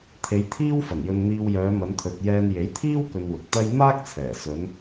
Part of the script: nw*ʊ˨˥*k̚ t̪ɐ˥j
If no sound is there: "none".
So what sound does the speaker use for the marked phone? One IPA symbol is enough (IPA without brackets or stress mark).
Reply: ʊ˨